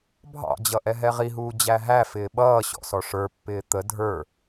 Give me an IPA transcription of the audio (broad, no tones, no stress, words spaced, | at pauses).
bʱɑ̰d͡ʑʌ ʔɛɦɛʁiɦuː d͡ʑæɦæfɪː ɓʌːɕɔ̰ sɔʂə˞pːɪː t̪ə dʱə˞